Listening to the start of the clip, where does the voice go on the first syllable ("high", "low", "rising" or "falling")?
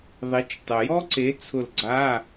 rising